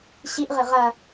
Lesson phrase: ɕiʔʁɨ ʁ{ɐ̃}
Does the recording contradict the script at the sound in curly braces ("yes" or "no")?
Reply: yes